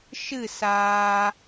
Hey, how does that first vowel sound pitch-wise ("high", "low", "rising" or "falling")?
falling